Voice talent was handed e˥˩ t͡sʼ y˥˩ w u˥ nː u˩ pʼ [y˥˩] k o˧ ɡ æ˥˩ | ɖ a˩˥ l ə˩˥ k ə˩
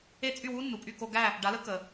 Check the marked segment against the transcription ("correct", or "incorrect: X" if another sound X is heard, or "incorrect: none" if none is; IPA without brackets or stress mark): correct